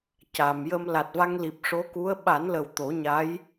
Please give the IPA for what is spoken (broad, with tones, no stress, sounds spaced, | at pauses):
c a˨˩˨ m j ə˧ m l a˨˩ t̚ v a˧ ŋ l i˨˩ p̚ ʂ o˧˥ k u˧˥ ə̯ ɓ a˨˩˦ n l ə˨˩ w t̪ o˨˩˦ ɲ a˧˥ j